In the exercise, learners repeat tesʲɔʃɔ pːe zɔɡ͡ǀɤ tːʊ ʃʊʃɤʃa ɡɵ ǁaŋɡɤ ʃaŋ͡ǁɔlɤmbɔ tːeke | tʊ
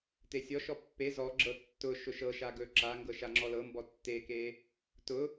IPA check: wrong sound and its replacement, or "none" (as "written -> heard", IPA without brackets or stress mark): ɡ͡ǀ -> ɡ͡ǁ